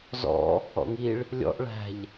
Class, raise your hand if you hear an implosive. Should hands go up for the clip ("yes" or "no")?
no